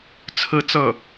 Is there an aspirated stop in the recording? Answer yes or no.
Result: yes